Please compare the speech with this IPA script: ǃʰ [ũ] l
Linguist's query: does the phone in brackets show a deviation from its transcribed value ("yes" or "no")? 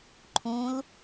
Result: no